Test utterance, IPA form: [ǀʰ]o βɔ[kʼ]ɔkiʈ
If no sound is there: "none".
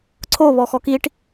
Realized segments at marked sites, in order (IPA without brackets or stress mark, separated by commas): ǀʰ, x